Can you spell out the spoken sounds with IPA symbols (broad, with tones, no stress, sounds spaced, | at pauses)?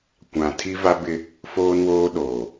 kʷ ã˨ tʰ i˦ v a˦ b ɪ˦ | f oː˦ n w oː˦ ɗ oː˨